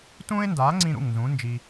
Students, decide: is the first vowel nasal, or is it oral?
nasal